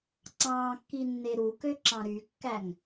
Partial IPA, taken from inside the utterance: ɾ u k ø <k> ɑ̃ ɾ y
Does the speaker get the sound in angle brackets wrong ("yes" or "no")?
yes